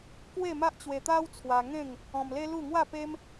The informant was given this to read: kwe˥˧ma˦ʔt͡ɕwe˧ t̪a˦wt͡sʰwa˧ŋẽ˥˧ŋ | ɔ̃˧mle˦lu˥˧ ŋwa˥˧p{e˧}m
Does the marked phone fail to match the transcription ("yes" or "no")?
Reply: yes